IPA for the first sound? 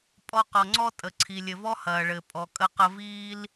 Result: pʼ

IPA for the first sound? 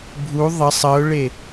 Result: bʱ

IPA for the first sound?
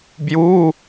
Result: b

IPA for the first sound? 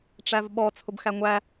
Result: ʈ͡ʂ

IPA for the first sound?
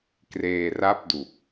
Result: k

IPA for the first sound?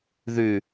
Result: ð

